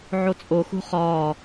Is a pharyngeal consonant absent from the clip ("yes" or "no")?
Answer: no